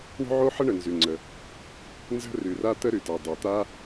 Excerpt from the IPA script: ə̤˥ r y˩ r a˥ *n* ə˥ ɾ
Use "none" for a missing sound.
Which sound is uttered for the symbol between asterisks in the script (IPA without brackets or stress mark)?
t̪